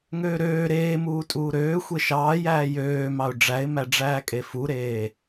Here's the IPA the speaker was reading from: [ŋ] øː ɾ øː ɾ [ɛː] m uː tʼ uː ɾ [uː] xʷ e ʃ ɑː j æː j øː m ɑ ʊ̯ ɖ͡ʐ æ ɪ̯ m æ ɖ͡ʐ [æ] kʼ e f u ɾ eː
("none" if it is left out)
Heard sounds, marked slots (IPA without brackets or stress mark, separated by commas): ŋ, eː, øː, æː